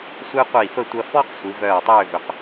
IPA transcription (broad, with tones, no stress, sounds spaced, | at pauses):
sʷ e˥ qʷ i˧˩ f ə˥˧ tʷ ɐ˧ f ɔ˥ q sʷ i˩˧ v œː˧˩ tˤ øː˥˧ v ʏ˩˧ q